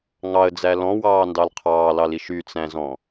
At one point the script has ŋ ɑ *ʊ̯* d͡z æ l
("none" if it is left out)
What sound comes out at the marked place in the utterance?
ə̯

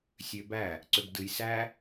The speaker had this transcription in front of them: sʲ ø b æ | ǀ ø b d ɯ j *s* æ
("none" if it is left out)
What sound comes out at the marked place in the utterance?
s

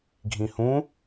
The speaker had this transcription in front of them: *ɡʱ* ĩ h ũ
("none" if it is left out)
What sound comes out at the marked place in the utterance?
ɡʱ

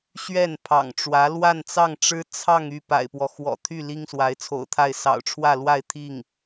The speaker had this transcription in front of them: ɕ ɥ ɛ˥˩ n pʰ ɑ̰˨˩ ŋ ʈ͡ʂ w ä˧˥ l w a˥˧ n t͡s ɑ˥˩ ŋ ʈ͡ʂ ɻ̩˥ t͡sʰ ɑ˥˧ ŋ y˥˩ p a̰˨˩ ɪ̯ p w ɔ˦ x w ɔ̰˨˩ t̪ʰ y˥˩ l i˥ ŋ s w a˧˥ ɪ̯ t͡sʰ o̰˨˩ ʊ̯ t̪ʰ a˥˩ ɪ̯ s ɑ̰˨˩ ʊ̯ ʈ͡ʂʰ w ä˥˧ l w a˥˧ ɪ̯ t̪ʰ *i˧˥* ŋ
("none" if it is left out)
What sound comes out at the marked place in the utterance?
i˥˩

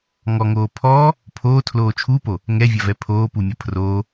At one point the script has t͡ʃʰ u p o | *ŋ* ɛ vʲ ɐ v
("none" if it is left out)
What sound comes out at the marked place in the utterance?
ŋ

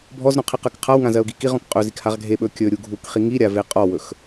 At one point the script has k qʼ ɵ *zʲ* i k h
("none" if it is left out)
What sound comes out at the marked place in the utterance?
z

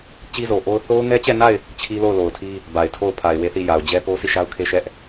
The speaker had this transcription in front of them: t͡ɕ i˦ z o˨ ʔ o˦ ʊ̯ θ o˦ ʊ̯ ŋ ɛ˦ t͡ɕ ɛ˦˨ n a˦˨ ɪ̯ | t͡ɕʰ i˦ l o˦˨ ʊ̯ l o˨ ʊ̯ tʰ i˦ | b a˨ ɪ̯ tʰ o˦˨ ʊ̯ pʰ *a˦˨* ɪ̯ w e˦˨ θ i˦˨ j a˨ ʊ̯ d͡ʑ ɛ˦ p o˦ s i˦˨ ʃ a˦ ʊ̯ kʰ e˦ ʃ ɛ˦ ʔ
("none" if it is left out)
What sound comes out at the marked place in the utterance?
a˨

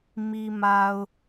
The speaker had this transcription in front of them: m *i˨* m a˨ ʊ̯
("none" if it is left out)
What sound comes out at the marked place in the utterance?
i˨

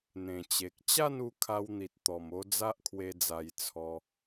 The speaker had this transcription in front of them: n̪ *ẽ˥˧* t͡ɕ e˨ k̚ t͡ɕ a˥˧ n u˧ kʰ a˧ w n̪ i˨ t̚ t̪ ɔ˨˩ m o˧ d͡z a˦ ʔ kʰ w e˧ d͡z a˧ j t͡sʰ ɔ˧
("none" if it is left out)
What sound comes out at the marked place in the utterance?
ẽ˨˩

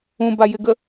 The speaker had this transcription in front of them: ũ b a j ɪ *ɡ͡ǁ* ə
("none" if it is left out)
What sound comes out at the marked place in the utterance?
ɡ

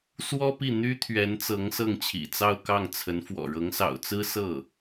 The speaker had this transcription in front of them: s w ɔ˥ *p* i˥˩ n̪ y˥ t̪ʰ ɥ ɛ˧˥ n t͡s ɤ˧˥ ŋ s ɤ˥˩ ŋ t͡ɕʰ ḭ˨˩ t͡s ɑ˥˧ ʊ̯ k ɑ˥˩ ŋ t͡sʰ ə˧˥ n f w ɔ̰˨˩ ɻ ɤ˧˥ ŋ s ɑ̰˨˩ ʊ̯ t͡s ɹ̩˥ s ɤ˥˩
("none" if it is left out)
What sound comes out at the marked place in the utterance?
p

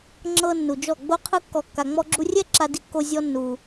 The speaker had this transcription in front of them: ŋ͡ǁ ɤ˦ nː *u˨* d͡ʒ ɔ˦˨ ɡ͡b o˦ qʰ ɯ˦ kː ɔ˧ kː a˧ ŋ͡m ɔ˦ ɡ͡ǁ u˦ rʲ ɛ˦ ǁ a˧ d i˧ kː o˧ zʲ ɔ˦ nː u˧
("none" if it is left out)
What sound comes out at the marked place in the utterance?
u˨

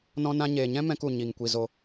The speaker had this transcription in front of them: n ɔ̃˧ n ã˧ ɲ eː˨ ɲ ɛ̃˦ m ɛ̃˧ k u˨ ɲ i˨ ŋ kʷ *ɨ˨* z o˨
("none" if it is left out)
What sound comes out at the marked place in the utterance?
i˨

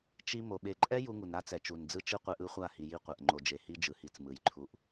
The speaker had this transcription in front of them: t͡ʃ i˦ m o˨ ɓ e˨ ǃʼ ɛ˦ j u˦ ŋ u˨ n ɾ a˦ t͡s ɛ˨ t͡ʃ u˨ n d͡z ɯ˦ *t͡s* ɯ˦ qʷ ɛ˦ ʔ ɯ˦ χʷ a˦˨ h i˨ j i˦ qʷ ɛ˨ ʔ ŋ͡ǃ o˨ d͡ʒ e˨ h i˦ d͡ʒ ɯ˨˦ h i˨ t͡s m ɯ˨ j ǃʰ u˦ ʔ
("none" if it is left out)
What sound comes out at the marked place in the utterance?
t͡ʃ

